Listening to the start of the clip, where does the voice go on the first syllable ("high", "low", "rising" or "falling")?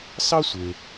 high